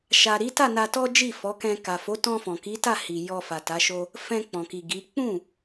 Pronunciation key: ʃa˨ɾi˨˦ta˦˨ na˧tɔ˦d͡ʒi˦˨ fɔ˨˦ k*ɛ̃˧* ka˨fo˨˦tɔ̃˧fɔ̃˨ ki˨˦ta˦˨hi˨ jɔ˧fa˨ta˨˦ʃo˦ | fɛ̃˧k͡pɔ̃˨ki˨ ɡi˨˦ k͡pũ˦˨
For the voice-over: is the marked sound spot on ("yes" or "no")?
yes